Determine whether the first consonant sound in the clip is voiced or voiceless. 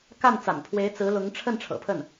voiceless